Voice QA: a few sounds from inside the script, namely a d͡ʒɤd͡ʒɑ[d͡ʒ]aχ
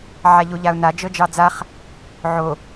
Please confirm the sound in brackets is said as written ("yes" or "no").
no